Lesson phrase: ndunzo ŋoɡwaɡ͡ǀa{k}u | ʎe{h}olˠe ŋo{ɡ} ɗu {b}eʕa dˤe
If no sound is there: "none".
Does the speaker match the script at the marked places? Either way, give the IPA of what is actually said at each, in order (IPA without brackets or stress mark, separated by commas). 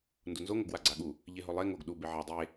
ɠ, ɦ, ɡ, b